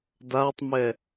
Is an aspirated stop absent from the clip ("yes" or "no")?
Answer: yes